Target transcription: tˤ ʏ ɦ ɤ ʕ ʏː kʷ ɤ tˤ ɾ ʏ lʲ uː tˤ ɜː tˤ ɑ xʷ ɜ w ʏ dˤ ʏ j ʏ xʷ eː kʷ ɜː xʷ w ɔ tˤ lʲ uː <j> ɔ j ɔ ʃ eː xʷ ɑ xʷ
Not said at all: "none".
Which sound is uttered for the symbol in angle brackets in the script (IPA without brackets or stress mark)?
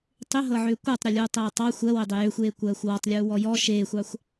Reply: w